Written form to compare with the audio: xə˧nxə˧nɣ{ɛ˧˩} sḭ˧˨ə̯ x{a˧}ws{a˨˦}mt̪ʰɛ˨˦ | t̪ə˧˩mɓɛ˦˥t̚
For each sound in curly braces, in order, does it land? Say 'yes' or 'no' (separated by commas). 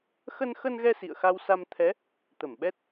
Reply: no, yes, no